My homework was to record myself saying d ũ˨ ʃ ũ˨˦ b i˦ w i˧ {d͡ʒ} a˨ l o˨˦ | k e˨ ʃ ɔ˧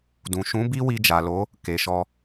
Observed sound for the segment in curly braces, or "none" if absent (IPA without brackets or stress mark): d͡ʒ